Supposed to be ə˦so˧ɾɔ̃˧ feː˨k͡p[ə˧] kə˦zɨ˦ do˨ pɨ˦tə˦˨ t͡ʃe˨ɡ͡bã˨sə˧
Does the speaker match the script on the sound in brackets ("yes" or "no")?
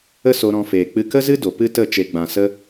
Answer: no